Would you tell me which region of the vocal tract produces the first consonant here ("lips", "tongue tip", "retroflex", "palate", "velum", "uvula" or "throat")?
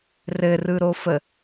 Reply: tongue tip